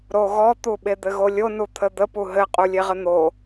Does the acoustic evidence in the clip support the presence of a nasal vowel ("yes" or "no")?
no